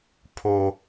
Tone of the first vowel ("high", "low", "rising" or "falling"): high